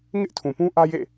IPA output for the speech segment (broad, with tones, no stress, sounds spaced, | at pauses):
ŋ ɪ˦ ʔ tʰ ũ˨ p ũ˦ ʔ ä˦ j ḛ˦˨